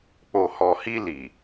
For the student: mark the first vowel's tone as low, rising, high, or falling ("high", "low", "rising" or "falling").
low